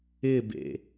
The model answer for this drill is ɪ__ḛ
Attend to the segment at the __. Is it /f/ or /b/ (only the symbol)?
b